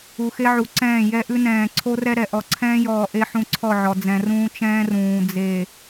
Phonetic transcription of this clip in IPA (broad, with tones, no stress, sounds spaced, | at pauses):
u˨ x e˦ ʕ u˨ ǀ ɛ̃ː˦˨ j ɛ˦ ʔ ʉ˦ n ɛ̃ː˨ ǀʰ o˦ r ɛ˦ ɾ ɛ˨ ʔ ɔ˨ ǀʰ ɛ̃ː˦ j ɔː˨ ʔ e˦ ħ ũ˦ ǀʰ ɔ˦˨ ʕ ɔ˨ d͡z ɛ̃˨ r ũː˦ t͡ʃ ɛ̃ː˦ r ũː˨ d͡z e˨